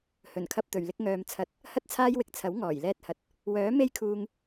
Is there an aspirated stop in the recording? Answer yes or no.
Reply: yes